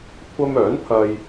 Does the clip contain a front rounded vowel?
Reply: yes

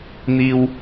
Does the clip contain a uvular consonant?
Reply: no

